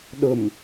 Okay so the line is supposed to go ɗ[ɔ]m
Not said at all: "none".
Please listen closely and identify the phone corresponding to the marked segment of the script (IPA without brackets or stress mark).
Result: ʊ